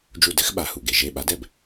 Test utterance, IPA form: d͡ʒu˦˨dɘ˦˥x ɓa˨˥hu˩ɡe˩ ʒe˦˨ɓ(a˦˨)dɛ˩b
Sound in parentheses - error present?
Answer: yes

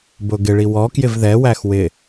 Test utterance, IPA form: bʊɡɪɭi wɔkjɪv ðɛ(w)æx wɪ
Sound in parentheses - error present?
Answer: no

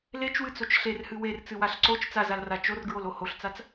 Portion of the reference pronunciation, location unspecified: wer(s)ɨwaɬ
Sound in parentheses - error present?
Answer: yes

